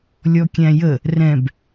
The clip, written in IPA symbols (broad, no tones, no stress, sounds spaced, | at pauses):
lʲ ɔ kʲ æ̃ j ə | r ɛ̃ b